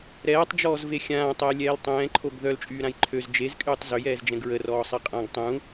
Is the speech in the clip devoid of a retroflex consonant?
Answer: yes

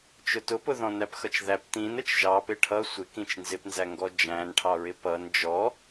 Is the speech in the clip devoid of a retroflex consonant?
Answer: no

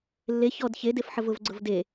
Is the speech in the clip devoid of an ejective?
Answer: yes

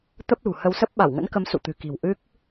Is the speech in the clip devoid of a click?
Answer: yes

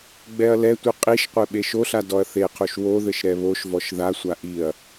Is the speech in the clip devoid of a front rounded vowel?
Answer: yes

